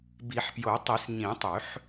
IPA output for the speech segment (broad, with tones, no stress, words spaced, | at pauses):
bi˨˩˦ħpjo˨˩˦tˤi˨˩˦s ɲĩ˨˩˦tˤʉ˨˩˦ħ